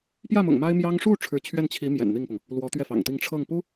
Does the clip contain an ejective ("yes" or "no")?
no